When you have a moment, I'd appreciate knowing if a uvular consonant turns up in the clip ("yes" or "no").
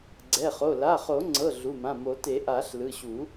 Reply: yes